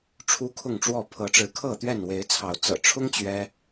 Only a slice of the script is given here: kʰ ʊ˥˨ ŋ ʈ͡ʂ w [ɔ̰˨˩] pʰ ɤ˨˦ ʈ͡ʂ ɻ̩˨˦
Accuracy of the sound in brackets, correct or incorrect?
incorrect